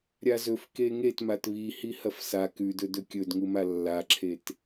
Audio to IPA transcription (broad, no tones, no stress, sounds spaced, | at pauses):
ɾʲ a z ɵ f k e ŋ e t m a t β i h i h ɐ f s a k ʉ d ɵ d ɵ kʲ ɵ d ŋ u m a lː a ǁʰ e t